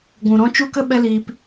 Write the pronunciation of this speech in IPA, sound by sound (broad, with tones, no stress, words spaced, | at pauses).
ɡʷũ˨ɾɔ̃˦ t͡ʃu˦kə˦ ɓɛ˦liː˧p